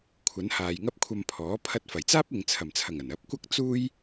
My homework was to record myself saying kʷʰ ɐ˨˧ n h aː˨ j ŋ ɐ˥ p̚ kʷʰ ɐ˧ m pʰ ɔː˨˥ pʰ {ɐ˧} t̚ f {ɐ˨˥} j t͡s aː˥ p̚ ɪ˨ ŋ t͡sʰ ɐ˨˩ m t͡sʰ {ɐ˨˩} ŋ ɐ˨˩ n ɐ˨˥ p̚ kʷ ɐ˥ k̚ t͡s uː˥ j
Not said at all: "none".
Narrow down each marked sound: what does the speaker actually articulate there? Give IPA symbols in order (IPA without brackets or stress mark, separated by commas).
ɐ˧, ɐ˨˩, ɐ˨˩